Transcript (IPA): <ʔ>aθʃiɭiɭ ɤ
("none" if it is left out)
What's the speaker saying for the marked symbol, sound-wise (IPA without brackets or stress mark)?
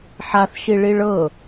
ħ